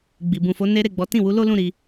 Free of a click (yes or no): yes